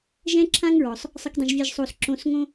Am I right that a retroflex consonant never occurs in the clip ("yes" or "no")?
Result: yes